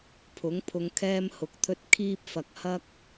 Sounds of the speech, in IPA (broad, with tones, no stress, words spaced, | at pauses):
pʰʊ˨˥ŋpʰʊ˧ŋ kʰɛː˥mhʊ˨˥k̚t̪ʰɵ˥t̚ kʰiː˥p̚fɐ˨k̚ hɐ˥k̚